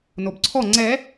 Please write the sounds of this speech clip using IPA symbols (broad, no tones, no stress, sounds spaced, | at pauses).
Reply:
n o b ǀʰ ɔ ŋ͡ǀ ɛ